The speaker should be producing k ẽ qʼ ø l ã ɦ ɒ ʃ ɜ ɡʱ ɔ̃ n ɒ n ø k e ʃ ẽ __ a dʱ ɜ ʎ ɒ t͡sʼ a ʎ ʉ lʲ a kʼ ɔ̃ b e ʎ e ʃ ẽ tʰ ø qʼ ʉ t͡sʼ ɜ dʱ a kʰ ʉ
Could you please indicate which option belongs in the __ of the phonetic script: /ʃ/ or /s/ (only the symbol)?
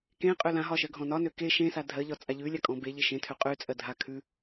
s